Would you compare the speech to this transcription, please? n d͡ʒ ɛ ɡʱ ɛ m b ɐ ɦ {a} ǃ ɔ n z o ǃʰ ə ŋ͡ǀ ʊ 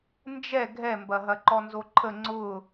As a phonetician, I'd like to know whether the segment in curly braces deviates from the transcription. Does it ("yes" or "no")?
yes